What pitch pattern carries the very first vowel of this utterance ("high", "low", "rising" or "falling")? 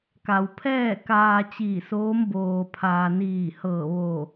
low